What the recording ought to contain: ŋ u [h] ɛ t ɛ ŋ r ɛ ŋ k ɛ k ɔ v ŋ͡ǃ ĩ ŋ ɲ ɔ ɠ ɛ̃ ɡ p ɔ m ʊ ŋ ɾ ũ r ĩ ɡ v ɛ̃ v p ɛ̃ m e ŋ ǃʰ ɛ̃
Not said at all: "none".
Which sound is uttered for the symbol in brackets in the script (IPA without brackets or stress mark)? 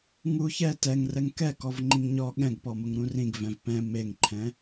ç